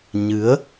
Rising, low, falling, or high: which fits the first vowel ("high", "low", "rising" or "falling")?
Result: rising